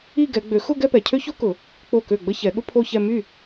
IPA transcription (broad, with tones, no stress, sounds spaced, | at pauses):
i˥˧ ɡ ɛ˨˦ ɡ͡b ø˨˩˦ x ʊ˥˧ ɡ ɛ˥˧ p ɛ˨ cʰ ø˥ ç o˥ k ʊ˨˩˦ | k͡p o˥˩ k ø˥˩ ɡ͡b ə˥˧ ç ɛ˨˩˦ ɠ ʊ˥ pʰ o˥˧ ç ɛ˥˧ m y˥˩